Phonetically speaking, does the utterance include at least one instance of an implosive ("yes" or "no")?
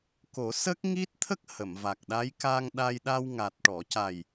yes